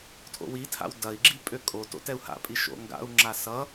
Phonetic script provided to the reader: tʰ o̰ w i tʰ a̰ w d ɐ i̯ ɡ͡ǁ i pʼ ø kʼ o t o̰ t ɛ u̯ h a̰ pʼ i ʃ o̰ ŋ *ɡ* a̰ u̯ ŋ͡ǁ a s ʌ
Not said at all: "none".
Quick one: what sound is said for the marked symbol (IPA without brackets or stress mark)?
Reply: ɡ